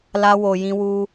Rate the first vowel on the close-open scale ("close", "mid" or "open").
open